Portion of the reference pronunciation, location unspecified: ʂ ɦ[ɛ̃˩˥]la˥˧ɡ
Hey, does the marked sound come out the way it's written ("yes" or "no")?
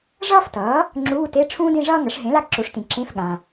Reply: no